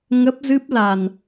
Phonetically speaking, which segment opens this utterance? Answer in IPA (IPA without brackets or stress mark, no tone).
ŋ